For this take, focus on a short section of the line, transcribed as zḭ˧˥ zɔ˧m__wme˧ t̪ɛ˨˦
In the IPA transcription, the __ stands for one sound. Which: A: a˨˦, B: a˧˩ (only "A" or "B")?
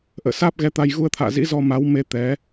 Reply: A